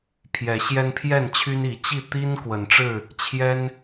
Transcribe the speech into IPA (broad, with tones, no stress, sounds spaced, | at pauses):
pʰ j ɛ˨˦ ɕ j ɛ˦ n pʰ j ɛ˥˨ n t͡ɕʰ y˦ n i˨˦ t͡ɕ i˥˨ t̪ i˦ n k w ə˨˦ n ʈ͡ʂ ɻ̩˥˨ | t͡ɕʰ j ɛ˦ n